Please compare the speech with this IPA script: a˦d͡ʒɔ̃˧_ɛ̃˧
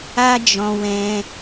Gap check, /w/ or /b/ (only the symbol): w